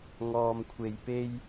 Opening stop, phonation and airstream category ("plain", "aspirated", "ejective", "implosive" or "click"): aspirated